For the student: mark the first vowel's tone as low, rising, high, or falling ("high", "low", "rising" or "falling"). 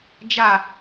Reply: falling